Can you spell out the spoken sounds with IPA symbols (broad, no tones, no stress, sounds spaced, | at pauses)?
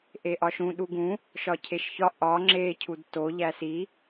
ʔ e ʔ ɒ ʃ ũ ɗ u ɡ ũ | ʃ ɒ cʰ e ʃ ç ɒ ʔ ɒ ŋ͡ǁ e cʰ u d t o ʎ æ s i